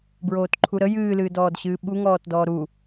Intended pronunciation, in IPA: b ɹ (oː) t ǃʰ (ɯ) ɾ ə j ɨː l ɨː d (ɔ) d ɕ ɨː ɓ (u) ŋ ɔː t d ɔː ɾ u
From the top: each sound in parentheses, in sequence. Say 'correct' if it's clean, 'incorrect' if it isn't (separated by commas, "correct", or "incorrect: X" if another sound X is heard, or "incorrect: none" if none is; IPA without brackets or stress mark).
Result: correct, incorrect: u, incorrect: ɔː, correct